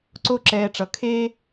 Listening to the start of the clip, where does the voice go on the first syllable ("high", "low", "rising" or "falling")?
high